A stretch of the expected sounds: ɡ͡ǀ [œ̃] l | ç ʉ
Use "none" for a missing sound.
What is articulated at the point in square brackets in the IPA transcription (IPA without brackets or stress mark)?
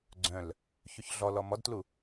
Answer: œ̃